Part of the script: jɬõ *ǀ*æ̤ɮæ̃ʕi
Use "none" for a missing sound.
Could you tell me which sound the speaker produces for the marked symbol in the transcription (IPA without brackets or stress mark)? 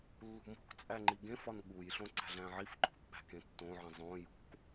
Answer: ǀ